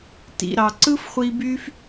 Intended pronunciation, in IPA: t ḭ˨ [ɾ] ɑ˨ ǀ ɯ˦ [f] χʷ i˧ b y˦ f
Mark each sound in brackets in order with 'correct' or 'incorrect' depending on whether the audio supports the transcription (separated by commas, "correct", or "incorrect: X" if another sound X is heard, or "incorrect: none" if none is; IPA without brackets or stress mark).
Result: correct, correct